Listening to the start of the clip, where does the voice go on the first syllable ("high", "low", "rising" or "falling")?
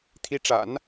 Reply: rising